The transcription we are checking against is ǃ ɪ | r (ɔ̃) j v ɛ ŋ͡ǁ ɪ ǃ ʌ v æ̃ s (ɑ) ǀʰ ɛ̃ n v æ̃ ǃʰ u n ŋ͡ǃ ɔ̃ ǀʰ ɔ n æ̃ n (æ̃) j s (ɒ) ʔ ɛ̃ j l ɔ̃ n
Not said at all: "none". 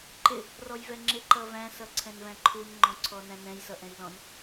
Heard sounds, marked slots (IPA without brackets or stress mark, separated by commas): ɔ, ʌ, ɛ̃, ʌ